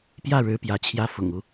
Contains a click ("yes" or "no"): no